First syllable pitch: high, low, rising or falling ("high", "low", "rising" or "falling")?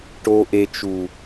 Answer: low